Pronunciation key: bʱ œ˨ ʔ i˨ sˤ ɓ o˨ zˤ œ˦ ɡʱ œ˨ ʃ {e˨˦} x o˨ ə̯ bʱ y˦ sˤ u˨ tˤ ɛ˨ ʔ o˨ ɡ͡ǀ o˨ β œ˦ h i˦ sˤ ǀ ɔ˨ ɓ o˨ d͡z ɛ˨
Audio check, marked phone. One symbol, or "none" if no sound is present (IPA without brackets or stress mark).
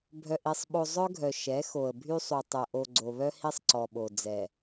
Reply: ɛ˨˦